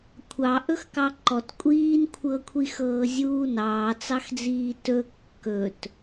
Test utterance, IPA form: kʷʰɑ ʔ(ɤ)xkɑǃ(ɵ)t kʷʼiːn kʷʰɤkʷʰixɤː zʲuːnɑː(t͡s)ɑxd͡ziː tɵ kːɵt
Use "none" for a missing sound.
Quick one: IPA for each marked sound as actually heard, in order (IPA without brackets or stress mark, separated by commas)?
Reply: ɵ, ɔ, t͡s